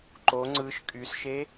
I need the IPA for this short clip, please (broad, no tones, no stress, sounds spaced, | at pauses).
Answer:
ǃ o ŋ͡ǀ ɯ ʃ kʼ y s ʃ e